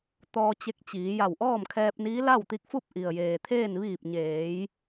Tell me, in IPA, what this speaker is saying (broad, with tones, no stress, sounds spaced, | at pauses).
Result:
t̪ ɔː˧ t͡ɕ e˧ k̚ t͡ɕ iː˩˧ j a˧˩ w ʔ ɔː˥˨ m kʰ ɛː˧ p̚ n iː˧˥ l a˥˨ w t̪ i˧ k̚ f u˥˨ p̚ ʔ i˩ ə̯ j eː˩ t̪ʰ eː˥˨ n ʋ iː˧˩ p̚ ɲ eː˩˧ j